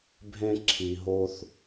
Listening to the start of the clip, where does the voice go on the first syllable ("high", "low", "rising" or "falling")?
high